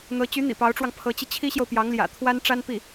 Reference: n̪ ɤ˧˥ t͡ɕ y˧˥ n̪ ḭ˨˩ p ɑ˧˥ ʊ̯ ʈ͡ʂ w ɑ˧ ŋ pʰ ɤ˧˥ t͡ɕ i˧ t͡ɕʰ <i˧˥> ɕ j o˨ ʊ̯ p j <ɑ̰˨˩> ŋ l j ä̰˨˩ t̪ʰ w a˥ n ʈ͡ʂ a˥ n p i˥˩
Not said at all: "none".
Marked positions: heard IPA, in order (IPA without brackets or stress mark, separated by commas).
i˥, ɑ˧˥